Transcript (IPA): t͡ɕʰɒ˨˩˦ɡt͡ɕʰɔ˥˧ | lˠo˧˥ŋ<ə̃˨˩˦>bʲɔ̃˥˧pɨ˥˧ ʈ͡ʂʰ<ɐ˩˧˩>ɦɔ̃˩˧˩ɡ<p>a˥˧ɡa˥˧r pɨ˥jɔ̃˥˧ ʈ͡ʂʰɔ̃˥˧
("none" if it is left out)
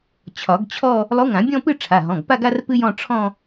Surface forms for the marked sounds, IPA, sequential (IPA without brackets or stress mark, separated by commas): ã˨˩˦, a˩˧˩, p